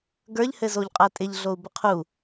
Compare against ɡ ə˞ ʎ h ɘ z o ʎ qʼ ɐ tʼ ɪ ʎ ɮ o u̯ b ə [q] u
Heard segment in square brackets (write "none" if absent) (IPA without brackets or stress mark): qʰ